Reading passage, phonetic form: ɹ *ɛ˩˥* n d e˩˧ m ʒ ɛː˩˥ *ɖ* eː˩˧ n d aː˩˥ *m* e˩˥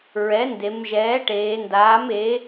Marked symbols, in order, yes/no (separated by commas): yes, no, yes